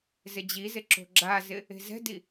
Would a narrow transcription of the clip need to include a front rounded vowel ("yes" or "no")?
no